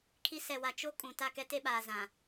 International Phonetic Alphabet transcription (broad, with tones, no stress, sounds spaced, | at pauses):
kʰ i˦ s ɛ˨ w a˨ t͡ʃ o˦ kʼ ũ˨ t a˦˨ k ɛ˦ t e˦ ɓ aː˨ z ã˨